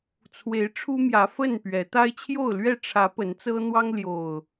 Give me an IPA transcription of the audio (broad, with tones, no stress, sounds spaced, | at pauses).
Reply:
t͡sʰ w e˨˦ ɪ̯ ʈ͡ʂʰ u˦ m j ä˨˦ f ə˥˨ n p ɥ ɛ˨˦ t̪ a˦ ɪ̯ t͡ɕʰ j o˥˨ ʊ̯ l ɥ ɛ˥˨ ʈ͡ʂʰ ä˨˦ p ə˨˦ n t͡s ɤ˦ n̪ w ɑ˦ ŋ l j o˨˩ ʊ̯